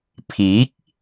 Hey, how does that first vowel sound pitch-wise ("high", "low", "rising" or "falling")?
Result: rising